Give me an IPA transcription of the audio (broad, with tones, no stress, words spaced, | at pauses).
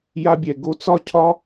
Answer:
ja˧bʲɛ˨ ɡo˧t͡sɒ˦˨cʰɒ˦